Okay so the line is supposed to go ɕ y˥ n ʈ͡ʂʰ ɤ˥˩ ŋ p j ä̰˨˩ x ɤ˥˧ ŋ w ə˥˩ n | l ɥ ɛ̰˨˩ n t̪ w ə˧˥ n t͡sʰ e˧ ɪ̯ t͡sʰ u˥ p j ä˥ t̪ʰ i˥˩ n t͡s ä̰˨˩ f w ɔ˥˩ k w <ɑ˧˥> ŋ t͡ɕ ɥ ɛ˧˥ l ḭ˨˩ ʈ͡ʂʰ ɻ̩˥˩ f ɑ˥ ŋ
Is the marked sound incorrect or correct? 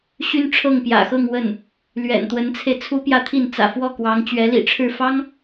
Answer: correct